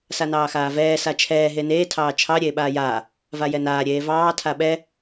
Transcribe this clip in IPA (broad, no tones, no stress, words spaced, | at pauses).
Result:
sanɑːxaːvɛː sat͡ʃʰɛː ɦeneː tʰɑːt͡ʃʰɑ ɾʲeːɓaːjaː | vajɛnaː ɾʲeːvɑː tʰaɓɛ